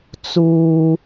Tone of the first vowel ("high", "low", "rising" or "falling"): low